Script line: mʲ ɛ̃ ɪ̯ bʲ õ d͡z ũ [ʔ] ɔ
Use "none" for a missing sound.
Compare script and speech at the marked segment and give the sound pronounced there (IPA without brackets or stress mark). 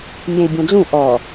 ʔ